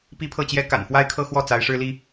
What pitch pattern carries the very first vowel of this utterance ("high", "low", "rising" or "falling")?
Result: high